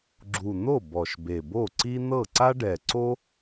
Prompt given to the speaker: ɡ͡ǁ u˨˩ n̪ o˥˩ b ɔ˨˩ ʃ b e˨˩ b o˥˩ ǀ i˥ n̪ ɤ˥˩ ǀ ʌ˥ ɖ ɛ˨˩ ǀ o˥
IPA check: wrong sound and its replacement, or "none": ʌ˥ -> a˥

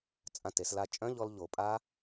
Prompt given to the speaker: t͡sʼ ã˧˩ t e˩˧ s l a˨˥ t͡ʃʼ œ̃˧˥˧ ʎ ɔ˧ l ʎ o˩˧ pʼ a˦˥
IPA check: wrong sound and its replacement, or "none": none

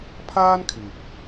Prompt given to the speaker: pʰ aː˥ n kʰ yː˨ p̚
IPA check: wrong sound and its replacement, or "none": none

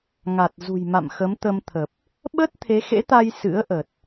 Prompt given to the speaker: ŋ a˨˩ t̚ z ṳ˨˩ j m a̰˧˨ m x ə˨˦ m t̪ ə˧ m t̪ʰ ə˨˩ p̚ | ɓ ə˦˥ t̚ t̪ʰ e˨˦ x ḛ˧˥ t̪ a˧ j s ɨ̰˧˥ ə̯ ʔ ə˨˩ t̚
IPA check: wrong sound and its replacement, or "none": none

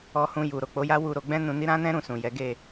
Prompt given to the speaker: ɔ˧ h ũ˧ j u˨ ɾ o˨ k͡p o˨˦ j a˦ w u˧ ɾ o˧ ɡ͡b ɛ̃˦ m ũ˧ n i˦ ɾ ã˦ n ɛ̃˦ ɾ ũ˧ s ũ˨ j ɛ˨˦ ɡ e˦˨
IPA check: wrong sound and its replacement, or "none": m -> n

